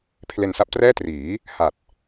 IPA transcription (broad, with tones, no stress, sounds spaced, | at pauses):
pʰ l e˧ n s a˦˥ p̚ t r ɛː˥˩ t r iː˩˦ | h a˨˩ t̚